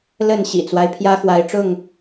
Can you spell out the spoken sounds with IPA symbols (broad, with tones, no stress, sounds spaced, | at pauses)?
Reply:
l ə˥˨ n ɕ ḭ˨˩ t͡s w a˦ ɪ̯ pʰ j ä˦ x w a˨˦ ɪ̯ ʈ͡ʂ ʊ˥˨ ŋ